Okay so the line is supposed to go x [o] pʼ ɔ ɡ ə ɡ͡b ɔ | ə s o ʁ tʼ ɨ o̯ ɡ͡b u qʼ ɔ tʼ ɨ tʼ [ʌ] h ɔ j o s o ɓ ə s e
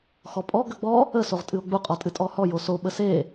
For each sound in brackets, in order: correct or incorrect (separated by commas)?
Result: incorrect, incorrect